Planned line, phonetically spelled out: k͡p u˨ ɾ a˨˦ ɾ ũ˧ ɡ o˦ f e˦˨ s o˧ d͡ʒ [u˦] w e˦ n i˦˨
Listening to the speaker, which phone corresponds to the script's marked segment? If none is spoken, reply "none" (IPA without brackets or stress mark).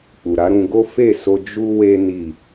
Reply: u˦